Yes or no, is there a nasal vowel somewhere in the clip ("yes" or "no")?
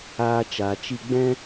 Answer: yes